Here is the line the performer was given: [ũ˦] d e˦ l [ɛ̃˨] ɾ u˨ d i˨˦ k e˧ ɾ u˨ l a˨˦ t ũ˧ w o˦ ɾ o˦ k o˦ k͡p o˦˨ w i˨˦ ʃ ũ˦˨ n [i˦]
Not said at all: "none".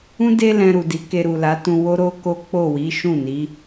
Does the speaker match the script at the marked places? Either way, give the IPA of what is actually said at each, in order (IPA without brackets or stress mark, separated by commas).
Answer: ũ˦, ɛ̃˧, i˨˦